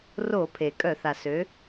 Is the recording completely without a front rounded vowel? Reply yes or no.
no